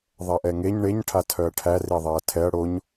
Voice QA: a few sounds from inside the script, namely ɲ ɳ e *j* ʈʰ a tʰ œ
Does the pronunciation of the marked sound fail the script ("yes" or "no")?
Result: yes